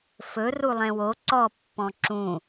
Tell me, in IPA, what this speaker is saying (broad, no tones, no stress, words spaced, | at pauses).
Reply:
fɵ rulˠɛ̃wo ǀɔ pːɔ̃ǁũ